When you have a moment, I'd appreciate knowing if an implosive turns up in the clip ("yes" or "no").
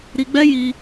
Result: no